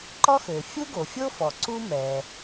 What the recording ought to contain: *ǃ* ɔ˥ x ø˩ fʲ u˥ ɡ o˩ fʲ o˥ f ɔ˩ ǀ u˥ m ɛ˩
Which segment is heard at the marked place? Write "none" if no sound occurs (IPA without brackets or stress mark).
ǃ